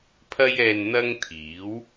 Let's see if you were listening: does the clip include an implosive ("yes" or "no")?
no